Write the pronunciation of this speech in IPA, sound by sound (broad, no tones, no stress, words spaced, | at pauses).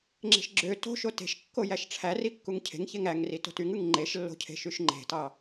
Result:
ŋ͡ǁe̤ʃɡ͡ǁø to̤ ʃote̤ʃkːo jæʃʈ͡ʂʰæri kːuŋcʰe̤ŋçeŋ æŋri to̤tyŋɯŋ ŋ͡ǃeʃlːo̤cʰe̤ ʃyʃŋ͡ǃe̤tɑ